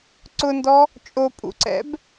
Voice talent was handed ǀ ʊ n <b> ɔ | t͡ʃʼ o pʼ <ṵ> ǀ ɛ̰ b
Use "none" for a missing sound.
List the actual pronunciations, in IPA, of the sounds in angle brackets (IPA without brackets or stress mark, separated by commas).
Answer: d, ṵ